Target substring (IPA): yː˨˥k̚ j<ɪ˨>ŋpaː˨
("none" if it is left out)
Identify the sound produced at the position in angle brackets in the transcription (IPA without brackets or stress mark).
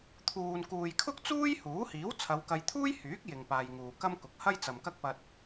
ɪ˨